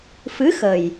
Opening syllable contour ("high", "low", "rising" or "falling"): rising